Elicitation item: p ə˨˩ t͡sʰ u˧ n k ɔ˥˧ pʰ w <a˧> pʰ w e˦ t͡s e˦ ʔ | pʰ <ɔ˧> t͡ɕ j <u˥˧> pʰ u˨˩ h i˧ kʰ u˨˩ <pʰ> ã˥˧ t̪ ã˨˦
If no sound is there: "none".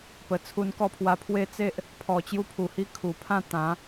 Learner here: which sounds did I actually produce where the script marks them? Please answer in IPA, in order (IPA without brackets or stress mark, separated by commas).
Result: a˧, ɔ˨˩, u˧, pʰ